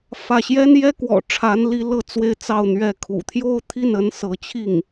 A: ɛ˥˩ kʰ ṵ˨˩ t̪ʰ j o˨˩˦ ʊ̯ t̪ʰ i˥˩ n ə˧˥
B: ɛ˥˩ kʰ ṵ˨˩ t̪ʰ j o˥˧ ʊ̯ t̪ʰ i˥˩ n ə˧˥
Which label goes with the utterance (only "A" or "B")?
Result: B